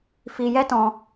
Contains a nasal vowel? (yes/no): yes